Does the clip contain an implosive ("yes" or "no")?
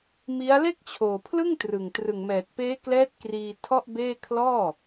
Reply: no